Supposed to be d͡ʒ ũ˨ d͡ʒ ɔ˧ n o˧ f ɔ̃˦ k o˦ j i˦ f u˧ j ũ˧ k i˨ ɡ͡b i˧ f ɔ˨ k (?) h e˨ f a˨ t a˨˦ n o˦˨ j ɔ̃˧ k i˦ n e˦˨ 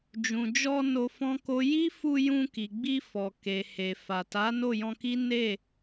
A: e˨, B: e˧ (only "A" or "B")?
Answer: A